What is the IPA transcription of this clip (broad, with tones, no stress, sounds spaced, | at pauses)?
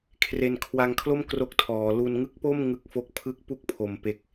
kʰ r e˧ n kʰ w a˧ ŋ kʰ l o˥˩ m k r o˦˥ k̚ tʰ ɔː˩˦ l u˧ n ŋ ɯ˦˥ k̚ p o˥˩ m ŋ ɯ˥˩ k̚ f o˥˩ k̚ pʰ ɯ˦˥ k̚ p u˦˥ k̚ pʰ o˩˦ m p e˨˩ k̚